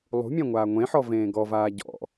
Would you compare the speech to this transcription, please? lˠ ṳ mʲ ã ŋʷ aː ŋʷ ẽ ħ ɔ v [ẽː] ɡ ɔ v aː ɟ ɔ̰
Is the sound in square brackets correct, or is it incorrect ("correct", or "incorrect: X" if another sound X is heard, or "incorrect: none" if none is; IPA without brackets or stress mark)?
correct